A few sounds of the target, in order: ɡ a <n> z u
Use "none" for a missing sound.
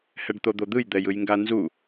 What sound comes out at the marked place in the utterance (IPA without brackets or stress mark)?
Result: n